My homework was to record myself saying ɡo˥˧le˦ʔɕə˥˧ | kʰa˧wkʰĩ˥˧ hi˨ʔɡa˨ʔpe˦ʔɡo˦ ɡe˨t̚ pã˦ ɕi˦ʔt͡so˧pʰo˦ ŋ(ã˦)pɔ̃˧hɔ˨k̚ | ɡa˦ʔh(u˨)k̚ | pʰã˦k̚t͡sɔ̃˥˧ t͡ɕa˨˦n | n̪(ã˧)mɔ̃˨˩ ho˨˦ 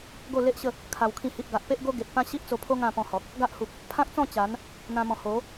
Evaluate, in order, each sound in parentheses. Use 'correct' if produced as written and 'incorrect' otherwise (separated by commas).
incorrect, correct, correct